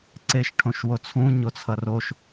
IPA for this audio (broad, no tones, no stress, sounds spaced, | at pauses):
ǀ e ʃ ʈʰ õ ʃ w o t͡sʰ ũ ɲ o t͡sʰ ʌ r o ʃ